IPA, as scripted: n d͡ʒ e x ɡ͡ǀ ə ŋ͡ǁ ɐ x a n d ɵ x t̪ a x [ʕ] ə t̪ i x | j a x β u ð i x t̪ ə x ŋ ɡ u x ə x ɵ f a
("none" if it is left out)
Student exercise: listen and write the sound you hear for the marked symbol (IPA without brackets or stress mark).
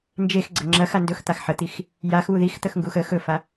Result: ħ